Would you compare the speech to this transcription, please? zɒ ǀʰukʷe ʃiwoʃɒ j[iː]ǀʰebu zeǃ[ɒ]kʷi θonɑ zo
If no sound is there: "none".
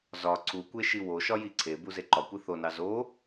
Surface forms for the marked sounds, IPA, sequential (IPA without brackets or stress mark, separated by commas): i, ɒ